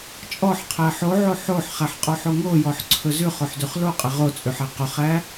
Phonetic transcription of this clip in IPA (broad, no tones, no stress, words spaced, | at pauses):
t͡ʃʼɔħqʰæ ħoʕo ħoħχæħqʼɔħo ŋojɔħǀʰɵ zʉχoħdʉχ loqʼæ ʁot͡sʼʉħæ qɵχæ